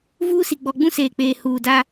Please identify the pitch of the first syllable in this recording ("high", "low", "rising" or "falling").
high